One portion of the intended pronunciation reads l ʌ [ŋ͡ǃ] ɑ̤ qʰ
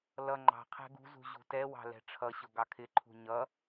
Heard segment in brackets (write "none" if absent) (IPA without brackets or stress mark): ŋ͡ǃ